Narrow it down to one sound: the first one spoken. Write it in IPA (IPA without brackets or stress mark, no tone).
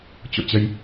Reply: t͡ɕ